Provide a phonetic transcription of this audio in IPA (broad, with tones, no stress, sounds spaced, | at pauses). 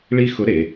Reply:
ɭ i˥ x ʊ˧˥ ɾ e˩˧